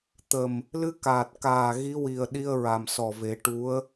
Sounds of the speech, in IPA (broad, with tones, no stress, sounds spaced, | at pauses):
t̪ ə˨˩ m | l ɨ˧˥ k aː˨˩ t̚ k aː˨˩ ɣ i˧˥ w i˨˩ ə̯ ɗ i˧ ə̯ ɹ a˨˩ m s ɔ˨˩ v e˨˩˦ ʈ u˧˥ ə̯